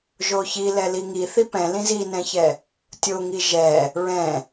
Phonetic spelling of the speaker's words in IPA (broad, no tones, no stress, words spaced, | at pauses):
ʒoçilɛ liŋi θipɛ̃ lĩzinɛ̃çɛ | tʲoŋi ʒɛ | ɹɛ̃